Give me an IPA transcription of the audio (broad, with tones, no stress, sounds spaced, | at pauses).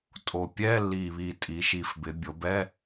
tʼ o˨˩ pʲ ɛ˧˥˧ lː i˨˩ β i˨˩ tʼ i˩˧ ʃ i˨˩ f b ɪ˩˧ bʲ o˩˧ b ɛ˧˥˧